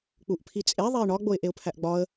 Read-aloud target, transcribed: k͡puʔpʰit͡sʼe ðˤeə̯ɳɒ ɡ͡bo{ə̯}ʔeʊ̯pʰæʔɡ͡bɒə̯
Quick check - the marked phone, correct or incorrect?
incorrect: ɪ̯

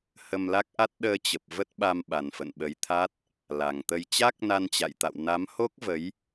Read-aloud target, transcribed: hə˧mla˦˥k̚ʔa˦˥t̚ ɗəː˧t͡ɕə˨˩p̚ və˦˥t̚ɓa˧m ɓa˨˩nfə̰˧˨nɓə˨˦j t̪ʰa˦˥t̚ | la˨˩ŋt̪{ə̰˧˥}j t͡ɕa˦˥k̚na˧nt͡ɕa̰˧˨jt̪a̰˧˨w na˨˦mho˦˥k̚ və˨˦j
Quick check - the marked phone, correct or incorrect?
incorrect: ə˧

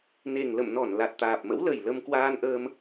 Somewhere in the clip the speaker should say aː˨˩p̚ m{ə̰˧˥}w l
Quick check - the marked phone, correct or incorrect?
correct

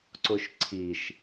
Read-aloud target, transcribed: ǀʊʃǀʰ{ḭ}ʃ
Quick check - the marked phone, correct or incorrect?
incorrect: i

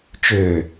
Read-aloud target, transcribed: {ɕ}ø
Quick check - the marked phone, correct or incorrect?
incorrect: t͡ʃ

